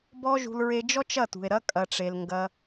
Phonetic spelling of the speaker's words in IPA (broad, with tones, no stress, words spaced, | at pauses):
bɔ˦ʒṳ˧l ɹe˧d͡ʒɔ˦t͡ʃ ɐ˦˨tṳ˨e̯ ɾɐ˦ kʼɐ˨ʈ͡ʂe˨l ŋɡɐ˧